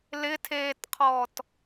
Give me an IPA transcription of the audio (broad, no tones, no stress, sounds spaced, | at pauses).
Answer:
l ɪ tʰ eː t qʰ ɔː t